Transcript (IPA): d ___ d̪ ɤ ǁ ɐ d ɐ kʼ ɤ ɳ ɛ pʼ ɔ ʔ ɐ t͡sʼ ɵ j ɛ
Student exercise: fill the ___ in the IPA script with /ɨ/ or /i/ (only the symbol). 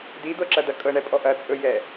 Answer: i